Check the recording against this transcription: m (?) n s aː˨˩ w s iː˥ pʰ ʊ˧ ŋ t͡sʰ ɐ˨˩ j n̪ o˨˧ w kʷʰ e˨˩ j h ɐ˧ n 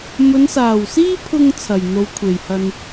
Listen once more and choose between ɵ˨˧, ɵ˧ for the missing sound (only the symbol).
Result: ɵ˨˧